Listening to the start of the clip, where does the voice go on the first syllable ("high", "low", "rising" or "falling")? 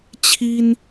high